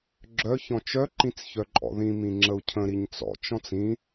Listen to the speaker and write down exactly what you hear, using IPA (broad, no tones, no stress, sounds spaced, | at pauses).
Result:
ɡ͡ǁ œ ç ɔ̃ t͡ʃ œ ǃ ĩ t͡s ç œ ǃʼ ɔ̰ ð ĩ m ĩ ŋ͡ǁ ə u̯ cʰ ə̃ ɾ i ɲ t͡s ɔ̰ t͡ʃ ɔ̃ t͡s ĩ